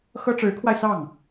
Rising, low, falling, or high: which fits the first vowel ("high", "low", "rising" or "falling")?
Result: high